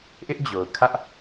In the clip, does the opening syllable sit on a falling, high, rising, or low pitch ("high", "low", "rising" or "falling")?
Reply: high